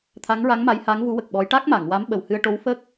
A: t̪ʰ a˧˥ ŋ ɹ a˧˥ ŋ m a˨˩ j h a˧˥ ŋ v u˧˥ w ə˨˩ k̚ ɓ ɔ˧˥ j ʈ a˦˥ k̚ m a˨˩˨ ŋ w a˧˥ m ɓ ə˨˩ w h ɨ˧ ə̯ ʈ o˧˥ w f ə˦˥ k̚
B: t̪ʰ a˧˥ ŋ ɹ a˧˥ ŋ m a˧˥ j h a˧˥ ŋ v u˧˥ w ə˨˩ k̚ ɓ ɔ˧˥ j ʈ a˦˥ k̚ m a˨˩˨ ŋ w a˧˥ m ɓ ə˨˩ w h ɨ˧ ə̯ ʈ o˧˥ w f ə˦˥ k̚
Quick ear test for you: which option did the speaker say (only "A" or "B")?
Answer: B